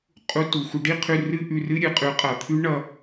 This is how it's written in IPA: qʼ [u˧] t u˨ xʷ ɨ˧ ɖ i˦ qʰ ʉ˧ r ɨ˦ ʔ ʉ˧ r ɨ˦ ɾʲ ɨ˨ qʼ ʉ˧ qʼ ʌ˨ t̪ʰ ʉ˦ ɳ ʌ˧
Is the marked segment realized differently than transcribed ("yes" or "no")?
no